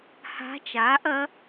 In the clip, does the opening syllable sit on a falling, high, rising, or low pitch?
rising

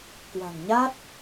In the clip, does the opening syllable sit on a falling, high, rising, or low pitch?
low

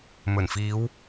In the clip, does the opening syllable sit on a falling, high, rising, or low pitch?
low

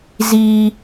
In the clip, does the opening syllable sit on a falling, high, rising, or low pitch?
high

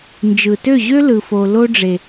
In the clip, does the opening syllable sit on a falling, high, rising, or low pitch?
low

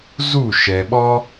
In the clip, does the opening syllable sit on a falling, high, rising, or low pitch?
falling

